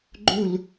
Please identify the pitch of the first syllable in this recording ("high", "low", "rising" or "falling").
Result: falling